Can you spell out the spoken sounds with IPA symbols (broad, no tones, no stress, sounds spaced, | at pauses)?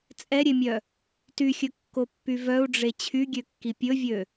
t͡sʼ ɛ ɾʲ e mʲ œ | t y xʲ ɵ kː o pː y v œ u̯ ɖ͡ʐ e t͡ɕʰ y ɡʲ ø kː i pʲ ɵ vʲ ø